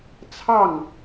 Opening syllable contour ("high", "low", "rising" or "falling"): falling